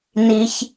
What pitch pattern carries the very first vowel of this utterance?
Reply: high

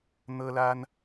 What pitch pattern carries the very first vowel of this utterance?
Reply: high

